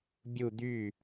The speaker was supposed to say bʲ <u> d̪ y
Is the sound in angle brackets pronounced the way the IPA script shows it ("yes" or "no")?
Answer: yes